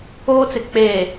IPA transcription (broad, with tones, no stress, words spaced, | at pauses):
oː˦t͡sɪ˨ k͡pe˨